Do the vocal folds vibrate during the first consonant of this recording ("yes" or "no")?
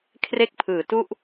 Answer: no